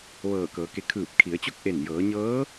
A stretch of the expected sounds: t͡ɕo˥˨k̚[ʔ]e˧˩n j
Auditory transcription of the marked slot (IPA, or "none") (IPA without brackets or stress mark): ʔ